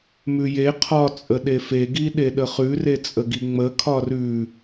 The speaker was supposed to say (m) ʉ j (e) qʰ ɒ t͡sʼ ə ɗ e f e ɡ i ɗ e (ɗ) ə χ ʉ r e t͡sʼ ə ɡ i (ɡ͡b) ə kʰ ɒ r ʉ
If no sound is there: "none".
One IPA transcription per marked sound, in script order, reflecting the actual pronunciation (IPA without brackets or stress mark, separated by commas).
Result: m, e, ɗ, ŋ͡m